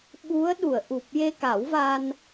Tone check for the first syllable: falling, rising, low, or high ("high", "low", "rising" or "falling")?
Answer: rising